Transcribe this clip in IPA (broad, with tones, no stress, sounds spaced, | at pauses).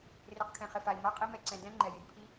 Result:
r e˨ q kʰ ɛ̃˨ χ ɪ˨ f a˨ i̯ m a˦ qʼ i˦ m ɛ˧ ǀ ɛ̃˧ d ɛ̃˦ ŋ͡ǃ ɛ˨ j ɪ˨ d pʰ i˦